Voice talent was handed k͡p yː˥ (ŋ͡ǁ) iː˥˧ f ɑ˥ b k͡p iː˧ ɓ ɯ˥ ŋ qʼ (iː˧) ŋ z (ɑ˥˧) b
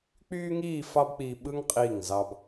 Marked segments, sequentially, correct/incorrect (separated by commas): incorrect, incorrect, incorrect